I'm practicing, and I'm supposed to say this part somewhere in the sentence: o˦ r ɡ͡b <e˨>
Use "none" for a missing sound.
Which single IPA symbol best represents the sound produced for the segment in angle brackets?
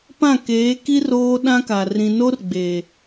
eː˨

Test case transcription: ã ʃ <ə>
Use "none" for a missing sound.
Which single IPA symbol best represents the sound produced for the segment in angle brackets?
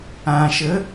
ə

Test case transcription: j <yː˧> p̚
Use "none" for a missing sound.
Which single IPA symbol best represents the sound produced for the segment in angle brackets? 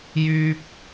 yː˥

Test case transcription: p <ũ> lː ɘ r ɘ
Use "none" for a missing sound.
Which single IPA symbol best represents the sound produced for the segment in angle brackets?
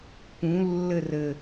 ũ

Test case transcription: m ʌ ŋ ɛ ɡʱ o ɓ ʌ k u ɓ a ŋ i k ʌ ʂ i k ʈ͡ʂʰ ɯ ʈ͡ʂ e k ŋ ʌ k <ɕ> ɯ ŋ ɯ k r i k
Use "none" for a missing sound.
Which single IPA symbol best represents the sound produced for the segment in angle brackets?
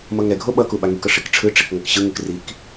ɕ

